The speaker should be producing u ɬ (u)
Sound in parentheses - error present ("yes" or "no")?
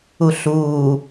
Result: yes